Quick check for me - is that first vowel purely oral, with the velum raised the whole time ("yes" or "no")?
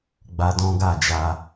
yes